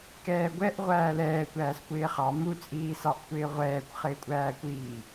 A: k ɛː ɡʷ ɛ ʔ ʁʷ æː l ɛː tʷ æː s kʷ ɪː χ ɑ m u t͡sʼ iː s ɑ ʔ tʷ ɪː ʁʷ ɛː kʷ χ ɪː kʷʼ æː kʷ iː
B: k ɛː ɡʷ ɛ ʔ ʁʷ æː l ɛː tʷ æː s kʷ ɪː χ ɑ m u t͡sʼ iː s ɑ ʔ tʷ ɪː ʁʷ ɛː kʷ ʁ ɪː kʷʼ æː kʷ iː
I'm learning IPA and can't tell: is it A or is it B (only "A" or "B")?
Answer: A